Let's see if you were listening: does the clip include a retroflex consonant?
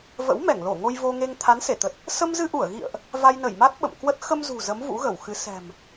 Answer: no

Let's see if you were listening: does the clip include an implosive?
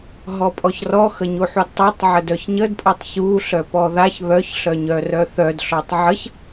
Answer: no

